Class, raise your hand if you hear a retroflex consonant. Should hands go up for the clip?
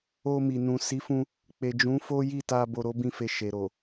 no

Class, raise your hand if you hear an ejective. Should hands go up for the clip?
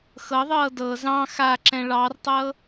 no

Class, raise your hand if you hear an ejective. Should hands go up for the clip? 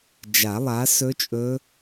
yes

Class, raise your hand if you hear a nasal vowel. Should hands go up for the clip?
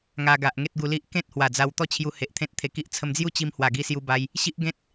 yes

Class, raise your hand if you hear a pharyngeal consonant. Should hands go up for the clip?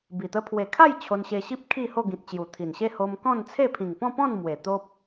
no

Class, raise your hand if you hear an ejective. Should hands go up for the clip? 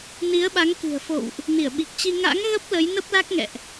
no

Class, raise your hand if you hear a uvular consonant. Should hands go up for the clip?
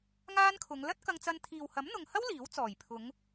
no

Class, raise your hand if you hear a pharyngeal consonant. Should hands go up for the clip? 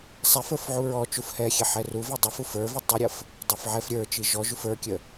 yes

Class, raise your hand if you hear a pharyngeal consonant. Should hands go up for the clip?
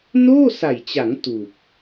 no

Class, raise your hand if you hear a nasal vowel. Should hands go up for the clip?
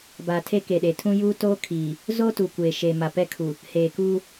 yes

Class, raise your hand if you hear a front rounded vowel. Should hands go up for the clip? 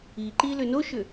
yes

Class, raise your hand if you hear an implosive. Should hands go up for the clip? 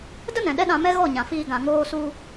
yes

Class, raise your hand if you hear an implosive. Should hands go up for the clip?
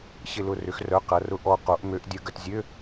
no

